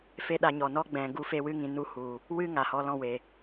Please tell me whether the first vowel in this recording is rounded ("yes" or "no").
no